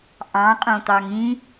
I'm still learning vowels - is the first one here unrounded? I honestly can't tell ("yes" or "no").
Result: yes